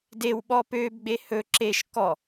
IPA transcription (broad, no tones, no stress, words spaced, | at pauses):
dew ɓɔpøb ɡ͡behɵ ǁeʃ kɔ